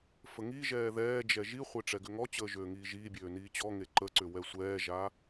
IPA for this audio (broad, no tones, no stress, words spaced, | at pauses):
fəŋiʒɛː ðɛːd͡ʒɛ ʒiχʷe ʈ͡ʂɛɡʏŋɔt͡ɕəː ʒøːŋiːʒiːbʲøː niːt͡ɕɔŋe ǃəǀʏ wɛsʷɛːʒa